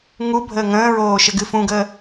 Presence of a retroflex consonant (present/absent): absent